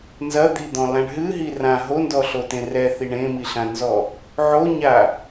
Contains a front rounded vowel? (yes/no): no